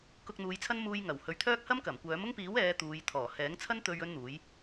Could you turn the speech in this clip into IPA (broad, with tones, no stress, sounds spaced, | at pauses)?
k ʊ˧ k̚ n̪ uː˨˧ j t͡sʰ ɐ˥ n m uː˥ j ŋ ɐ˨˩ w h ɵ˨˧ ɥ t̪ʰ œː˥ k̚ h ɐ˥ m k ɐ˨˩ m kʷ œː˨˥ m ʊ˥ ŋ p iː˨˥ w ɛː˨˧ t̪ uː˨˧ j t̪ʰ ɔː˨˩ h ɛː˨˥ ŋ t͡sʰ ɐ˥ n t̪ ɵ˧ ɥ ɵ˥ n n̪ uː˨˥ j